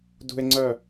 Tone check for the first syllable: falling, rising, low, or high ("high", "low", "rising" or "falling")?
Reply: low